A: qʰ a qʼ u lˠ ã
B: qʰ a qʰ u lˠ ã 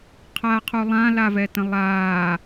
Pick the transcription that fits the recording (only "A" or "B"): B